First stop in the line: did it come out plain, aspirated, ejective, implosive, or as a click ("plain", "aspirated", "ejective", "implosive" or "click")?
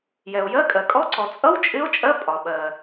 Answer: ejective